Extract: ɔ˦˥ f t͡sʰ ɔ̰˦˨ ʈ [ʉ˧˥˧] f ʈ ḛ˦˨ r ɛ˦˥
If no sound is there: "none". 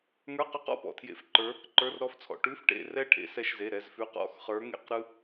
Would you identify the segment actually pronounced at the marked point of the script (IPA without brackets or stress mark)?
ʉ˧˥˧